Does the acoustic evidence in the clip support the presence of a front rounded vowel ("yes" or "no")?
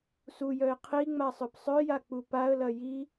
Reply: yes